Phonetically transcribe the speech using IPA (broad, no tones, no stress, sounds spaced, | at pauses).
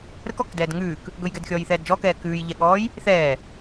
ɾ ə k ɔ k d ɛː d ŋ ʉː k | ɡ ɵ j ɡ ɛ d xʲ ɔː j θ ɛː d d͡ʒ ɔ k ɛː k ʉː j ʎ ɛ ɠ ɔː j | θ ɛː